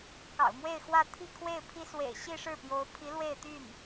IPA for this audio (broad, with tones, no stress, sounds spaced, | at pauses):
k ɑ̰˨˩ ʊ̯ m w e˥˧ ɪ̯ x w ä˥˧ t̪ʰ i˥˧ kʰ w e˥˩ ɪ̯ pʰ i˥ s w ḛ˨˩ ɪ̯ ɕ i˥˧ ʂ ɻ̩˥˩ p j o˧˥ ʊ̯ pʰ i˧˥ l w e˥˧ ɪ̯ t̪ y˥˩ n